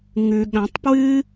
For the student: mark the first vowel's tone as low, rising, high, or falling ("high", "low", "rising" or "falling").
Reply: low